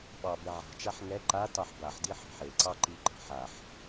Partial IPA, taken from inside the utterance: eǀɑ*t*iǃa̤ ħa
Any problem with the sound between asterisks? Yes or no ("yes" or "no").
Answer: yes